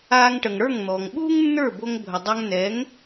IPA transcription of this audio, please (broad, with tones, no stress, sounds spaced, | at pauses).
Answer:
aː˧ ŋ ʈ ə˩ ŋ ɽ ə˞˥˩ ŋ n̪ ɔː˩ ŋ ɓ uː˥ ŋ nː ə˞˥˩ b o˧ ŋ bʱ ə˩ dˤ a˧ ŋ n ɛ˩˥ ŋ